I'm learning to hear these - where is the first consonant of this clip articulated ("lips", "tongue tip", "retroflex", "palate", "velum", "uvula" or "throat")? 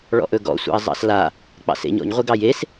retroflex